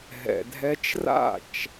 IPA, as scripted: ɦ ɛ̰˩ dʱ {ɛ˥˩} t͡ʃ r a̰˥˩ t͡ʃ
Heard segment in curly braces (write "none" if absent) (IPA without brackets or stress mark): ɛ˧